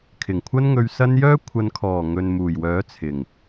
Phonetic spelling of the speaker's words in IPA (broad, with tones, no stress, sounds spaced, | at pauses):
kʰ ɪ˨˩ ŋ kʷʰ ɐ˧ n ŋ ɵ˨ ɥ s ɐ˧ n j œː˥ kʷʰ ɐ˨ n kʰ ɔː˨˩ ŋ ɵ˨ n m uː˨˩ j w œː˨˥ t͡sʰ ɪ˨˩ ŋ